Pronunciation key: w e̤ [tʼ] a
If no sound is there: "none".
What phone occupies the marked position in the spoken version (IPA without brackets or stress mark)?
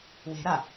ɾ